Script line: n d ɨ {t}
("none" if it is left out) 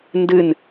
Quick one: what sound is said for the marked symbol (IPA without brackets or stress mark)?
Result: n